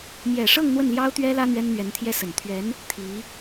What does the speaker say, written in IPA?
mjɛ˨˩ʂɤ˥˧ŋ n̪wə˥˩n ljɑ˥ʊ̯t̪ɥɛ˥lä˥ n̪ɥɛ˥nn̪ɥɛ˧˥nt̪ʰjɛ˥ sə˨˩n t̪ʰɥɛ˧˥n | t̪ʰi˧˥

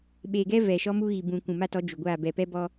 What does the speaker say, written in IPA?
ɓeː˨ɡɛ˦ vɛ˨ʃɔ˦mu˦ ɣi˨bũ˨ kʷũ˨ma˦tɔ˨˦ d͡ʒu˨ɡʷaː˦˨ bɛ˨pɛ˦bɔ˦

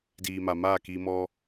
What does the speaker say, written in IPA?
diː˨ma˨ maː˦˨ki˧mɔ˦

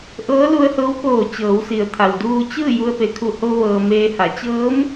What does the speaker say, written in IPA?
ʔɤː˧˥lu˧ə̯hɤː˧˥wkoː˧˩ t͡ɕɤː˩˧wsi˩ə̯t̪ʰa˩wduː˧ t͡ɕɯː˥˨ ju˧ə̯pe˩kʰu˧˩ ho˧ʋɤː˩ meː˧ha˩˧ t͡ɕɤː˧˥m

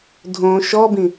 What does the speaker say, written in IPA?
dʱõ ʃɔbĩ

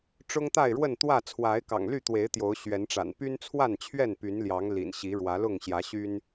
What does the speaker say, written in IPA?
ʈ͡ʂʊ˦ŋt̪a˥˨ɪ̯ɻwə˥˨nt̪wä˥˨ t͡sʰwa˨˦ɪ̯kɑ̰˨˩ŋly˥˨t̪we˨˦ɪ̯ t̪jo˨˦ʊ̯ɕɥɛ˨˦nʈ͡ʂa̰˨˩n py˦nt͡sʰwa˥˨nt͡ɕʰɥɛ˥˨n py˨˦nljɑ˨˦ŋ lḭ˨˩nɕi˨˦ɻwä˨˦lʊ˥˨ŋ ɕjä˨˦ɕy˦n

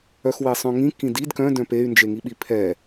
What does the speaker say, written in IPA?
œxwesˤœ̃ŋĩ kĩdid kœ̃ dœ̃pey̯ nd͡ʒeŋiɓipʰɛ

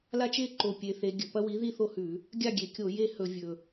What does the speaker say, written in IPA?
la˦t͡ʃe˥˩ǃo˨˩ pʲe˩˧θe˩˧ ɡʲɵ˨˩pɐ˦wi˨˥ ði˥˩θo˥˩hʉ˧˩˧ | ɡʲa˥˩ɡʲe˨˩kʲo˧˩˧ je˥˩ hɵ˧˩˧vʲɵ˨˩

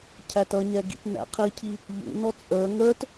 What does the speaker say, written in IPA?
cʰætʌɲɛ ɡḭtnæ̰qʰicʰi | ʎṵnɔ t͡sʼə˞ ŋə˞t

